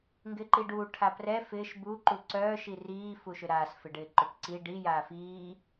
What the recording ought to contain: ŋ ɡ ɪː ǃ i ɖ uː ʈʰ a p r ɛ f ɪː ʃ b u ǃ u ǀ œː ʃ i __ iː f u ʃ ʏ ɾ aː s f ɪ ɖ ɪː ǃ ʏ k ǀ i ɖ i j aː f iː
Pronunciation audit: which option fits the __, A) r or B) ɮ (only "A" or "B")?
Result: A